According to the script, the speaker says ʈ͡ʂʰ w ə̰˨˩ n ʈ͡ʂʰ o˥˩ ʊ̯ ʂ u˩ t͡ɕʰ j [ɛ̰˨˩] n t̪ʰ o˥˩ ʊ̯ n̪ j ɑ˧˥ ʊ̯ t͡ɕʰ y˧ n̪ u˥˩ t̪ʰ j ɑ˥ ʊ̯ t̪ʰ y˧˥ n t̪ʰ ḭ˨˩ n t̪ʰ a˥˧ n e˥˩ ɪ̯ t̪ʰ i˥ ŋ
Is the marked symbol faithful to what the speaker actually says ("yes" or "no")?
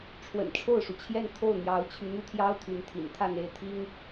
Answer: no